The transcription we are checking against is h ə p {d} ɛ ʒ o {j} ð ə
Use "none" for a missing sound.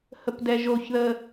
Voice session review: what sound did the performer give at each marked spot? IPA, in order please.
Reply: d, ç

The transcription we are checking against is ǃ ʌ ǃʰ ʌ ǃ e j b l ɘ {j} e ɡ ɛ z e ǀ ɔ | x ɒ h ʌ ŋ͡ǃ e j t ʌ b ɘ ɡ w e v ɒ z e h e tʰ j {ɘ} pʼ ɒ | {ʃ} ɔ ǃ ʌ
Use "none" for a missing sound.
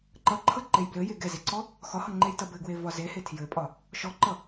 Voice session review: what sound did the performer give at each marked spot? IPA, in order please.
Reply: j, ɘ, ʃ

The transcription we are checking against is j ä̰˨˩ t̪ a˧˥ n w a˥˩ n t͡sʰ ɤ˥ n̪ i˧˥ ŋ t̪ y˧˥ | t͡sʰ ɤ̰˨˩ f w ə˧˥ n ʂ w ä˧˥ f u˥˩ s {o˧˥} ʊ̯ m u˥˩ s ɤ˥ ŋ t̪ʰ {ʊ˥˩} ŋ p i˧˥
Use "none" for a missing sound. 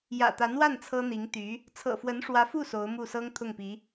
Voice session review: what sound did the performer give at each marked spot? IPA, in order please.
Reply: o˧˥, ʊ˥˩

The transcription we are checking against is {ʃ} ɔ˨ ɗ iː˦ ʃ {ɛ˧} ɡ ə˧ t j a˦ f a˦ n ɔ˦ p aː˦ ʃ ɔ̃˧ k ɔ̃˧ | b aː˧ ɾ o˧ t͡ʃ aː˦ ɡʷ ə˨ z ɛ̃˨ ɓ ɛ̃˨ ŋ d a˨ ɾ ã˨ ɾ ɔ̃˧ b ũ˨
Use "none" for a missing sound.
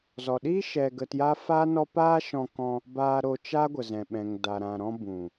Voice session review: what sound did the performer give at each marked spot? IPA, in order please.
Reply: z, ɛ˧

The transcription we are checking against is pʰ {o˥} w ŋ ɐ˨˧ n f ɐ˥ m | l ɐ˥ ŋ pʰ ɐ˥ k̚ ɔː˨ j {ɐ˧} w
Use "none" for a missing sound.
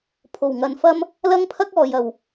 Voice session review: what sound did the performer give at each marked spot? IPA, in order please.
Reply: o˨˩, ɐ˨

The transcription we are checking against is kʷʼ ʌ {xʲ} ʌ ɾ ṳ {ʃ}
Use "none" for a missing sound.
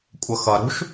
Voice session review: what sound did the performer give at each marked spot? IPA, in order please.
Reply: x, ʃ

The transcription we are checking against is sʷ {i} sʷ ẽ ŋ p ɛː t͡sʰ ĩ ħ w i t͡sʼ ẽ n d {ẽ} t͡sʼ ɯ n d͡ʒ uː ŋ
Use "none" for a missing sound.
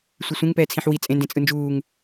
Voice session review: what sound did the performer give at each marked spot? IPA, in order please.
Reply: i, ẽ

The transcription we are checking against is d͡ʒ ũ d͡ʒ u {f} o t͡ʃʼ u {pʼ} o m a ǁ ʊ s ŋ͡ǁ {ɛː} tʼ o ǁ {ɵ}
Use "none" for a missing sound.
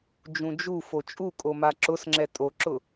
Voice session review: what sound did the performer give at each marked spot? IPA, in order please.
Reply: f, kʼ, ɛ, ʊ

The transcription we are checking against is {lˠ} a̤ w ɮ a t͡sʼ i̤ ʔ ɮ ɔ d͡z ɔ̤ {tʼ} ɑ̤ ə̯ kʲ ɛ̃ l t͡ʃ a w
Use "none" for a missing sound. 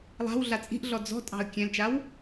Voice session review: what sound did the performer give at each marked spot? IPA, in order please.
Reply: lˠ, tʼ

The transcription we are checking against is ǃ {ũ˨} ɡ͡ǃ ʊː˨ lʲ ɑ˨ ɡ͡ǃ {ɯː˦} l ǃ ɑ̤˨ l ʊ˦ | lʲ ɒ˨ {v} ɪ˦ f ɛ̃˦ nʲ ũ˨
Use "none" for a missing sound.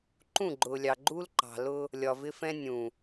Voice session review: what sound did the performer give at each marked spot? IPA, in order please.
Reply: ũ˦˨, uː˦, v

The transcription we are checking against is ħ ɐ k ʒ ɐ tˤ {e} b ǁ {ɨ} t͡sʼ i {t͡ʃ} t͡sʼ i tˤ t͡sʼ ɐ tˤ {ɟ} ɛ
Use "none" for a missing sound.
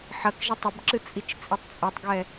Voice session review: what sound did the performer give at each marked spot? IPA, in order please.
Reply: ɘ, ɨ, t͡ʃ, ɡ

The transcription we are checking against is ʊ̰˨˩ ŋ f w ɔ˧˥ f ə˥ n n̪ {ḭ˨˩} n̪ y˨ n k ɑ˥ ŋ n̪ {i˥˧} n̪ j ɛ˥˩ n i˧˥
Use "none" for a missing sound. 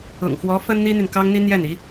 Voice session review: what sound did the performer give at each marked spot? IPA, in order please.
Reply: i˥, i˥

